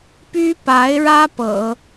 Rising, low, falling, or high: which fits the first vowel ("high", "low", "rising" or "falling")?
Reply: high